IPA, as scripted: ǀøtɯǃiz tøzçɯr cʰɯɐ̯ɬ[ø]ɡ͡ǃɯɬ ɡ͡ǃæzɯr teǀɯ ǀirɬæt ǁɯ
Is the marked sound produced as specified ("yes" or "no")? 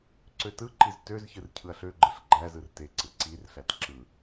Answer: yes